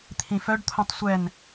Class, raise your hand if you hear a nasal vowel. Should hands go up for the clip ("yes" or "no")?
yes